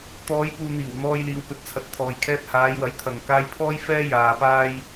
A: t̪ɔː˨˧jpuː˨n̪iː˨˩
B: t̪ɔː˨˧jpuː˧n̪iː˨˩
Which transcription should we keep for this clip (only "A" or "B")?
A